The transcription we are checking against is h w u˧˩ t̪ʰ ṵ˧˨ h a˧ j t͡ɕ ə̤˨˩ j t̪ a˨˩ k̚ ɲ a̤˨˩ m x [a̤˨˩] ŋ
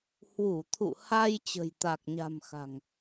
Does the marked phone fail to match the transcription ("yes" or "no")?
no